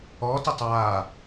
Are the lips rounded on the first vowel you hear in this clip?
yes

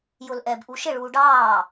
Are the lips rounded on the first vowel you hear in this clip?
yes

